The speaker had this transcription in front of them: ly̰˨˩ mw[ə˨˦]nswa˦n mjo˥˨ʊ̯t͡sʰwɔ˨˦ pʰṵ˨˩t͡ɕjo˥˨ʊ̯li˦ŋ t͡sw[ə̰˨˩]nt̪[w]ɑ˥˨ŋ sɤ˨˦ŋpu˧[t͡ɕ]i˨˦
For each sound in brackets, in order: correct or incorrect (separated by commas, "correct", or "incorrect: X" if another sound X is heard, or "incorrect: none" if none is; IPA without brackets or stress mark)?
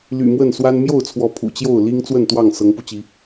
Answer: incorrect: ə˥˨, incorrect: ə˥˨, correct, correct